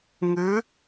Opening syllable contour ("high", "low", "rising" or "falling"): rising